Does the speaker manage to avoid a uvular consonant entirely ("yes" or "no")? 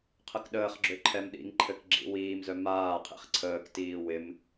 no